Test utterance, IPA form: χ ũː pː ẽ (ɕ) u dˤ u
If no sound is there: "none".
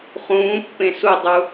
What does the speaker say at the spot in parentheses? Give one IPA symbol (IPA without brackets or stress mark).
s